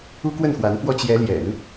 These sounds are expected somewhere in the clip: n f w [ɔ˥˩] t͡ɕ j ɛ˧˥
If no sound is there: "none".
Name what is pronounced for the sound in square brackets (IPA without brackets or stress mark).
ɔ˥˩